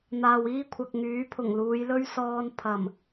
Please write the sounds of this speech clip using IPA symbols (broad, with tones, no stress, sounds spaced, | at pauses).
n̪ aː˨ w iː˥ kʷʰ ɐ˨ k̚ ŋ yː˨˥ pʰ ʊ˨˩ ŋ l uː˨˧ j l ɵ˥ ɥ s ɔː˧ n pʰ ɐ˨˩ m